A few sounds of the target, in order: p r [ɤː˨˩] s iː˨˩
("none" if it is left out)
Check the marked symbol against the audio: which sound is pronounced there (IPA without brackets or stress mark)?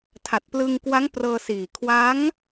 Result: ɤː˧